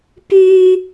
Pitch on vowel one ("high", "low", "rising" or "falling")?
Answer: high